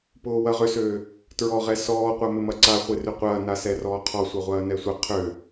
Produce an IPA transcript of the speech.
p ʊː w ɐ ʁ ʏ s øː | t ɹ ɔ ʁ ɛ s ɔː qʷ a m ɪ m ɐ ǀ a χʷ ɪ r ʏ qʷ ɐː n a s ɛ r ɔː qʰ ɔ sʷ ɐ ʁʷ ɐː n ɛ sʷ ə qʰ ø

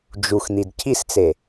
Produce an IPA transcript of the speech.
d͡ʒ u x n̪ i d cʰ i s t͡s e

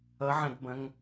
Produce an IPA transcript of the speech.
ʌ ʕ ɐ̃ d b ɐ̃ ŋ

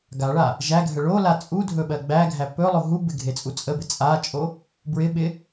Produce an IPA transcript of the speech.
ɡ a ɭ a | ʒ æ ɡʱ ə ɭ o l a t͡sʼ u dʱ ɵ ɓ ɜ ɡ͡b æ ɡʱ æ p ɵ lˠ o ɦ u b ɪ ɡʱ e t͡sʼ u t͡sʼ ə b ɪ t͡sʼ a t͡ʃʼ o | b ɹ ɪ ɓ ɪ

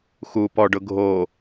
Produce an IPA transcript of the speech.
x u p ɔ ɖ ʊ ɡʱ o

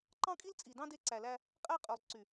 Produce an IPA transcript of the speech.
ǃ ɑ̃˦ kʼ i˦ l t͡sʼ i˨ d ɑ̃˦ d e˦ ǀ æ˨ l æ˦ | qʼ æ˦ qʼ ø˨ lˠ ǀ y˨

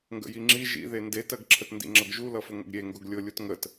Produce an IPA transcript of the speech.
ŋ ɡ ə̰ j i ŋ͡ǁ i ʒ ḭ ð e n d e t ɜ ɡ ǁʰ ə t n d ḭ ŋ͡ǁ ʌ ɡ ʒ u l ʌ f ʊ ŋ ə̰ ɡ ɾʲ e ŋ ɡ ʊ ɡ lʲ ʊ lʲ u t ŋ ə t

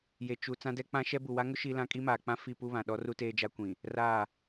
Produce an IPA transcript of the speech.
j e˨ t͡ʃ u˨ t͡s ã˦ d ɛ˦ k͡p ã˦ ʃ ɛ˦ b u˨ w a˦ ŋ ʊ˦ ʃ i˦ l ã˦ kʼ i˦ m aː˨ k͡p ã˦ f i˦˨ p u˦ β ã˨ ɗ ɔ˦ r u˦ t eː˦ d͡ʒ a˦ kʷ ĩ˨ | r a˦˨

